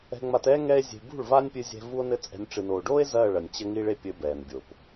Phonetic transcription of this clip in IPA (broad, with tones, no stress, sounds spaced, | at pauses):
ɛ̤˧ ŋ͡m a˧ t ɛː˦ ŋ ɛ˦ e̯ zʲ e̤˧ b ṳ˦˨ ɭ v a˦ nʲ pʲ ɨ˧ zʲ ɛ̤˧ v u˦ o̯ n ɘ˦ t͡sʼ ɛ̤˧ nʲ ʈ͡ʂ ɨ˨ n oː˨ ɖ oː˦ e̯ z ɐː˦˨ ɭ ɐ˨ nʲ t͡ɕ ɘ˦ ŋ i˦ ɭ e˦ pʲ ɘ˧ b ɛː˨ n bʲ o˨ p